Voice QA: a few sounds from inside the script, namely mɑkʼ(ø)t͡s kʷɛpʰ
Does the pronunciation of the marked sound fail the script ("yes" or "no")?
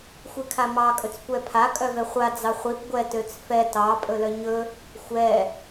yes